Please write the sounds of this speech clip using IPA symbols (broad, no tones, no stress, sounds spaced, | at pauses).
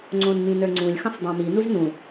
ŋ͡ǀ õ n m ĩ n ə˞ ŋ͡ǀ ũ lʲ x ə̃ sˤ dˤ õ m i n u z n ũ